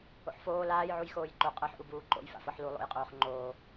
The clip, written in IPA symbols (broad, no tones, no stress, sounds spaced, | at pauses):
o̰ ħ f oː l aː j ʕ u j x oː j ǃ o qʼ ɤ ħ ʔ u b uː ǃ o̰ j f a̰ f ɤ ħ l u lˠ o̰ j qʼ oː χ ŋ͡ǃ oː